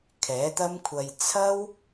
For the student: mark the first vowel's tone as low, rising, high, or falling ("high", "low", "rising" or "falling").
rising